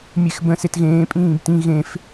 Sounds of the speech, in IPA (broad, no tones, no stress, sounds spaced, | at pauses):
mʲ e x b ə̃ s e t ɣ ẽː pʼ ĩː b t ĩ ɣ ẽ f